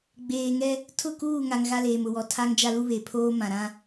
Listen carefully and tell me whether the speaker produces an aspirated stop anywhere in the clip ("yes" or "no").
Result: yes